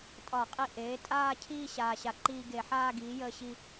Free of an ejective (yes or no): no